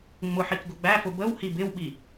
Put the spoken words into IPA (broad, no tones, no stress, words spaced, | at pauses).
ŋ͡mʊħik ɡʊɡ͡bæfʊ bəw hibɪwɓi